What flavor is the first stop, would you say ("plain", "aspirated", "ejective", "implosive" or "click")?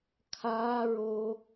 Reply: aspirated